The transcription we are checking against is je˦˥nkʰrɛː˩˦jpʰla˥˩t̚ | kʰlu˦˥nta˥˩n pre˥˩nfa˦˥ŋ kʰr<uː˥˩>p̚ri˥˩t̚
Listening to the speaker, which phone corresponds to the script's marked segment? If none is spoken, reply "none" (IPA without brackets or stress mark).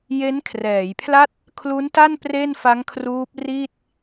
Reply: uː˦˥